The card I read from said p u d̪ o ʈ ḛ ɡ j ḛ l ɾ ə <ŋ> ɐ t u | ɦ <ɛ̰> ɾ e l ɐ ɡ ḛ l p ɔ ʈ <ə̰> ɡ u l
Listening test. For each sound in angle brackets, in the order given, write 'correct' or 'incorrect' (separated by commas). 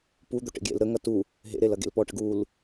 correct, incorrect, correct